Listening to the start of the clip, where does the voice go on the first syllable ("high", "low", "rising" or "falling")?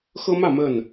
high